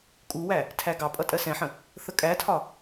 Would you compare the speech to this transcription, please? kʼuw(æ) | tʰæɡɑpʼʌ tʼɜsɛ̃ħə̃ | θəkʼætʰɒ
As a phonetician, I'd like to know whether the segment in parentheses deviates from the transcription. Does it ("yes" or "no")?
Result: no